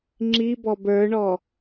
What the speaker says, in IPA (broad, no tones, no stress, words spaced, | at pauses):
ŋ͡ǁibɔb ə˞ɳɔ